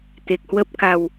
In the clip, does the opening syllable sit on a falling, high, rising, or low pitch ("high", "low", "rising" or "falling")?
low